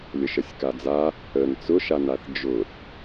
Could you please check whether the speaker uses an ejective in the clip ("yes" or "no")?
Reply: no